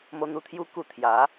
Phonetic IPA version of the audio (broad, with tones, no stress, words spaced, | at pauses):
mo˧n̪u˧t̪ʰju˦ ku˧ t̪ʰja˨˦